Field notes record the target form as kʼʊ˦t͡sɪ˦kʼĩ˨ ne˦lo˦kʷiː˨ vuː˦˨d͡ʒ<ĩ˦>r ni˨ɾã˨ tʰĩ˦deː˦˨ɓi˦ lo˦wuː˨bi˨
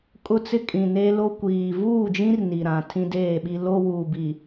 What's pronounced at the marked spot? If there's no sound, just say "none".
ĩ˦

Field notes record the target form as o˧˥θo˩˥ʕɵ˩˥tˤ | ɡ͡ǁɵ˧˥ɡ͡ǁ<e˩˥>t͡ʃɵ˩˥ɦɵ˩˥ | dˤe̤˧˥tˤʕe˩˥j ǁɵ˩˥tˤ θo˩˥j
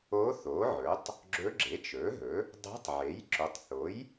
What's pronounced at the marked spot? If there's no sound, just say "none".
e˩˥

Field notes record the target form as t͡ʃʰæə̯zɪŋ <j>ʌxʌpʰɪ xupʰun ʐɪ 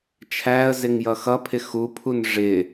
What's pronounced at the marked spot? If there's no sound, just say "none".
j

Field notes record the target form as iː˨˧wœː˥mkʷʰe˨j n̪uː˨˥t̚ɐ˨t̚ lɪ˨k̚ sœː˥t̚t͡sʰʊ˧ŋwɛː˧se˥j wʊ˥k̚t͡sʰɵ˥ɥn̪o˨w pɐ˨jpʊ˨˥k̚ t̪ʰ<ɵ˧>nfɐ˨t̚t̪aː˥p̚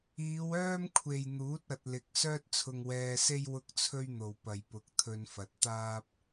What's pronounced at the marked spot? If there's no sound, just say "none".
ɵ˧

